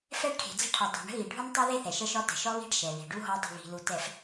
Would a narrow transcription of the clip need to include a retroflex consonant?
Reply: yes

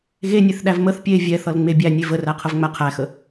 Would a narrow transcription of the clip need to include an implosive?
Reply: yes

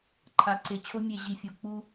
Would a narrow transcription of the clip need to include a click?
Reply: yes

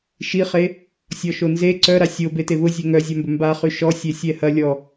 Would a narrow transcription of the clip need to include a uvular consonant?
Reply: yes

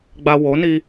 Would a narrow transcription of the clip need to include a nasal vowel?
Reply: no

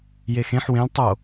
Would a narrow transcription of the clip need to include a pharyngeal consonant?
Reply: yes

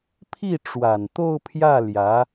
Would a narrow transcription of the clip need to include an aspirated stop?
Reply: yes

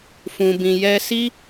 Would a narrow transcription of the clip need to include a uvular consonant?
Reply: no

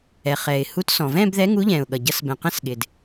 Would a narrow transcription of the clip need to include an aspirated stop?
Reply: no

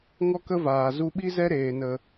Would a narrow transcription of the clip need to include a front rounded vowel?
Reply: no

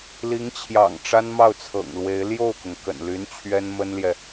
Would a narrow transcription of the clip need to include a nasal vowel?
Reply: no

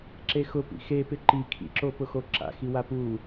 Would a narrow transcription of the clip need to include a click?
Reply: yes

